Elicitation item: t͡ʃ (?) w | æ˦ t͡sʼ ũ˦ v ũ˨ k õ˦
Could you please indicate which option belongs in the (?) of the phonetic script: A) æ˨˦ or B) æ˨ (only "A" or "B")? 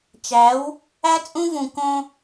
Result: A